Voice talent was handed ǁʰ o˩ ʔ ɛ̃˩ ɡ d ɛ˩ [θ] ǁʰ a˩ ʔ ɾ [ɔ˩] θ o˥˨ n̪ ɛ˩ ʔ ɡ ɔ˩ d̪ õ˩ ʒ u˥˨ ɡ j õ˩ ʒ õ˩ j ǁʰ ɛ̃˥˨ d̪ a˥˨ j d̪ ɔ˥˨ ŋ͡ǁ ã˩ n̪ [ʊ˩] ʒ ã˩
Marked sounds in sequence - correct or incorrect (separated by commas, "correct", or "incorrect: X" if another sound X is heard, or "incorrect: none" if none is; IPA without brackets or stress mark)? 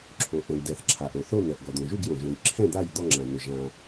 correct, incorrect: o˩, correct